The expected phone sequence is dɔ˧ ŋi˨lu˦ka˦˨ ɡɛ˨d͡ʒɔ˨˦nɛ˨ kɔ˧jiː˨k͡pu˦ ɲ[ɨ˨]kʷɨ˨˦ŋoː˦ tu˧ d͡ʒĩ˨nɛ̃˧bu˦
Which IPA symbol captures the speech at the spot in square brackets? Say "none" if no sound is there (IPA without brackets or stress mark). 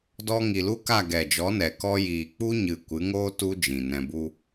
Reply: ɨ˨